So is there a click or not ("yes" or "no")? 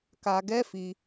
no